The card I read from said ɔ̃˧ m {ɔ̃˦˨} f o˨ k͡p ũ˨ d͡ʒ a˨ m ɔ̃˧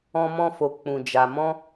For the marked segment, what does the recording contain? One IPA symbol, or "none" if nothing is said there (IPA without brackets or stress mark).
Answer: ɔ̃˧